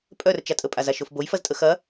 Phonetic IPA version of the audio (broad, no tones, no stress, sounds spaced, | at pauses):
pʼ œ r t͡ʃ a tʼ ə pʼ a z a ʃ o f b o j f ɐ z tʼ ə x ɐ